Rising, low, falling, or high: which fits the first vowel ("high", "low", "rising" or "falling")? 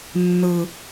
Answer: high